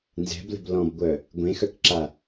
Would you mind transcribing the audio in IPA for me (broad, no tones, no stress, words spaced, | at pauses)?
nzɛ̤blə̤b lɔ̃bɡʷœ | ɡʷẽxœkǁa